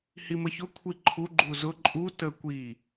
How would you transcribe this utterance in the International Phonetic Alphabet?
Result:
h i m ə ç ʊ kʷʰ i ǃʰ u ɡ͡ǃ u z ʊ ǃʼ u t ə kʷ i

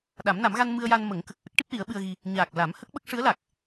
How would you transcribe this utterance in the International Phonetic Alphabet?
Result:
ɗ a˨˩˦ m n a˨˩˦ m ɣ a˧ n m ɨ˧ ə̯ j a˧ n m ə˨˩˦ ŋ k ə˨˩ k̚ ʔ ə˦˥ k̚ ʈ i˦˥ p̚ l i˨˩˦ ə̯ ɓ ɨ˧ ə̯ ɣ i˧ | ɲ aː˨˩ k̚ l a˨˩˦ m h ə˦˥ k̚ ɓ ə˦˥ k̚ ʂ ɨ˧˥ ə̯ l a˨˩ k̚

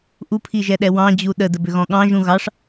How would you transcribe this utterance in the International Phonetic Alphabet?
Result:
ʔ u pʰ i ʒ ɛ ɗ ɛ w ɑ̃ d͡ʑ u ɗ ə d ə b ʏ ɣ ɔ̃ ɠ ɑ̃ ʒ ũ ɣ ɑ ʂ

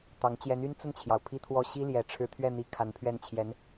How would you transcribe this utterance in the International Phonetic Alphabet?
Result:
t̪ ɑ˧˥ ŋ t͡ɕ j ɛ˧˥ n y˥ n t͡s ə˥˩ n t͡ɕʰ j ɑ˩ ʊ̯ pʰ i˥ t̪ʰ w ɔ˥˩ ɕ i˥ l j ɛ˨˩ ʈ͡ʂʰ ɻ̩˧˥ t̪ʰ ɥ ɛ˥˩ n̪ i˧˥ kʰ a˧˥ n pʰ ɥ ɛ˥˩ n t͡ɕʰ j ɛ˧˥ n

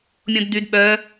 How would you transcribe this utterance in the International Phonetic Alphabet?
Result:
mʲ õ d d̪ y d ɓ œ

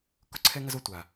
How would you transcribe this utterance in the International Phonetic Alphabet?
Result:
k ʊ˥ ǀʰ ɛ˥ ŋ ɐ˥ z o˩ tʷ a˩

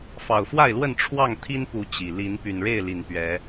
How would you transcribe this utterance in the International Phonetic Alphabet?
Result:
f ɑ˨˩ ʊ̯ f w a˥˨ ɪ̯ l w ə˥˨ n ʈ͡ʂʰ w ɑ˥˨ ŋ t̪ʰ i˦ n p u˨˦ t͡ɕ i˨˩ l i˨˦ n p y˨˩ n ɻ e˥˨ ɪ̯ l i˨˩ n p ɥ ɛ˨˦

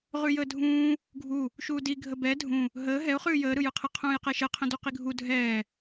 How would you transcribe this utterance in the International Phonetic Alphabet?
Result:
ʁ ʉ j əː dʱ ũː | ɡʱ u | ʃ uː d i ɡʱ ə b ɛ dʱ ũ | ɦ əː ɦ ɛ ʊ̯ χ ʉː j əː ɾ ɯ j ɯ qʰ ə qʰ ũː j q ɛ ʃ ə qʰ ə̃ d u q i ɡʱ u dʱ ɛː

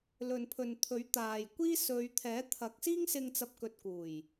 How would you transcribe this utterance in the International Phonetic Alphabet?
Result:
l ɵ˨ n pʰ ɵ˨ n t̪ʰ ɵ˨˥ ɥ t̪ aː˨ j kʷ iː˥ s ɵ˨˧ ɥ t̪ʰ ɛː˨˥ t̪ʰ ɐ˨˥ k̚ s iː˥ ŋ s ɪ˧ ŋ t͡s ɐ˨ p̚ k ɵ˨ t̚ k uː˨˩ j

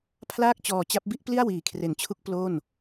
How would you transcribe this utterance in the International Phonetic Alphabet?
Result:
pʰ l aː˥˩ k̚ t͡ɕ ɔː˧ t͡ɕ a˦˥ p̚ b i˥˩ ʔ p l i˥˩ a̯ w iː˨˩ kʰ r e˨˩ n t͡ɕʰ u˦˥ k̚ p l o˥˩ n

